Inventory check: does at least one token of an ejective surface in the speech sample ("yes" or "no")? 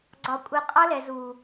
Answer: yes